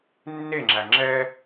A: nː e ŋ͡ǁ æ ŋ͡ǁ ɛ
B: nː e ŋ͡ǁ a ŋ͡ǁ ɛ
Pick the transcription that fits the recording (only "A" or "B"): A